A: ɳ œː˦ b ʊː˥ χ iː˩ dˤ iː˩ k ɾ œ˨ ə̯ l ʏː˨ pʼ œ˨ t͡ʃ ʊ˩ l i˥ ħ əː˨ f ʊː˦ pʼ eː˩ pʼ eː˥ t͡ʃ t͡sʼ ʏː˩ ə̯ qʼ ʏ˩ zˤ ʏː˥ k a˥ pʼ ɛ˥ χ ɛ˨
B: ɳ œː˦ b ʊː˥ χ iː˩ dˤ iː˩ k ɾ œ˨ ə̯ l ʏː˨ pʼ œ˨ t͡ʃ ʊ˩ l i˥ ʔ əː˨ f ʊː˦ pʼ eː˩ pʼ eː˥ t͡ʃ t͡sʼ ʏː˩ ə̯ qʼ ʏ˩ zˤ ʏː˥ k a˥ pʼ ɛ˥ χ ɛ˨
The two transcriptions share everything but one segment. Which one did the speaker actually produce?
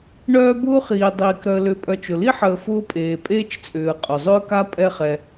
A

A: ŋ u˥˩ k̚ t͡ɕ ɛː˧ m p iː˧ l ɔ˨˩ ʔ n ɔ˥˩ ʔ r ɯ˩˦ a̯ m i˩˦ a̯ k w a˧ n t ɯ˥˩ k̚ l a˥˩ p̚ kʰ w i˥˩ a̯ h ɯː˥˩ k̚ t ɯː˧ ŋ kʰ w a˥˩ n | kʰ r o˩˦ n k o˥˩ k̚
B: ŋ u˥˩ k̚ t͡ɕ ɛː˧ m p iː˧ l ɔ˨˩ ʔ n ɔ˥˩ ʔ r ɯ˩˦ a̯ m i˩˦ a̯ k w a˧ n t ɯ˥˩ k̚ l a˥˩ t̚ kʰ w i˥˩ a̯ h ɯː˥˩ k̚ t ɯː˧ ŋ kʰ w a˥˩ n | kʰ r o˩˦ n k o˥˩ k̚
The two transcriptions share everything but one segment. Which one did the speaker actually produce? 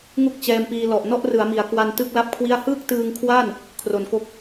A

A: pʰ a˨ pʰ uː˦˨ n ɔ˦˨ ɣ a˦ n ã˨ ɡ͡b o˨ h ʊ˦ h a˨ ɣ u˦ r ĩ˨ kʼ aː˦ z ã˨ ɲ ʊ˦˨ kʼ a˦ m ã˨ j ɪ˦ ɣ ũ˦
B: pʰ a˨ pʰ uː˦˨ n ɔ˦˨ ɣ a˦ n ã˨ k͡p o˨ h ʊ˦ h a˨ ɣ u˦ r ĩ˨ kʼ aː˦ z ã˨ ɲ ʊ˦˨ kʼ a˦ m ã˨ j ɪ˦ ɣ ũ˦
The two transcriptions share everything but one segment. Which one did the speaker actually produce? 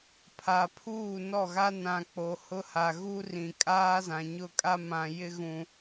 B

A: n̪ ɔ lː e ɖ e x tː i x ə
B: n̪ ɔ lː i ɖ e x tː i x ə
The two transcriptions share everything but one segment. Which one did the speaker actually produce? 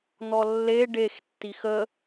A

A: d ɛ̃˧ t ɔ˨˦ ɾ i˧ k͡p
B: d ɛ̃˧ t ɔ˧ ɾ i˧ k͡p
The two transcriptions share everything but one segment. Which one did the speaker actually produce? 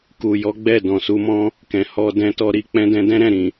B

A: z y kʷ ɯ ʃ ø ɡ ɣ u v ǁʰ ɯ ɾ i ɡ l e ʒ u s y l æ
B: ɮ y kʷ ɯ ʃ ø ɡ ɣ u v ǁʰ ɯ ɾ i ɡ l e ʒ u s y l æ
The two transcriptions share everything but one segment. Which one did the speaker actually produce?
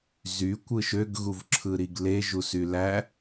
A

